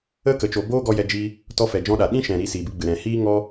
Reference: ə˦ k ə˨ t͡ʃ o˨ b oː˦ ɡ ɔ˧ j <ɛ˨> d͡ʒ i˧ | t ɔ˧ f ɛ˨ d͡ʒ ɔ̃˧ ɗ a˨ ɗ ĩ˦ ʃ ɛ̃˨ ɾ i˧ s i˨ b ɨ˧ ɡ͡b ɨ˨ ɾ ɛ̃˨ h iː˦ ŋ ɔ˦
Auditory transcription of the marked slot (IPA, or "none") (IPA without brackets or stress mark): ɛ˧